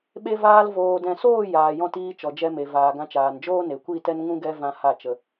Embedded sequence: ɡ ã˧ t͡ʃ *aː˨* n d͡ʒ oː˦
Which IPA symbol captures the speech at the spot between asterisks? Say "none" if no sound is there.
aː˨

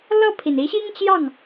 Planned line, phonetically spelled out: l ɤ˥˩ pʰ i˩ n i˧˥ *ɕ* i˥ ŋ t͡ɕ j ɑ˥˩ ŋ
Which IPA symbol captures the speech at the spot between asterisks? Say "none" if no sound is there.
ɕ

